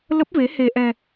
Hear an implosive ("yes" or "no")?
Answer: no